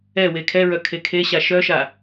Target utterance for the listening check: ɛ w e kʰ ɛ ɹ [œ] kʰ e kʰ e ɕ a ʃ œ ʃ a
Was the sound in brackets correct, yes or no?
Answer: yes